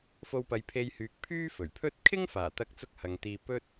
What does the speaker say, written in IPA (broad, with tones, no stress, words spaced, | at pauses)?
fo˧wpɐ˨˧jpʰe˧jhyː˨k̚ pʰyː˥fɵ˨˩ɥpʰɵ˥t̚ kʰɪ˥ŋfaː˨˩t̪ɐ˧k̚t͡sʊ˧k̚ hɐ˨ŋt̪iː˧ pɵ˥t̚